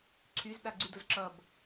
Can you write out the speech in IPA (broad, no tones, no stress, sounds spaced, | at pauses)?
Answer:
ǀʰ y z ɗ a ɡ͡ǀ y d o z ǁ ʌ b